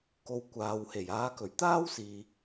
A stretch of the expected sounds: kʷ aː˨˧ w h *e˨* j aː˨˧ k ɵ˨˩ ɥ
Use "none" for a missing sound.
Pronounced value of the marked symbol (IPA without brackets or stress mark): e˨˩